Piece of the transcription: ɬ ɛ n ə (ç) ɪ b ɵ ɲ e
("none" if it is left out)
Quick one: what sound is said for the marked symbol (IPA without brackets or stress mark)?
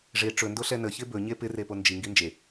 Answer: ç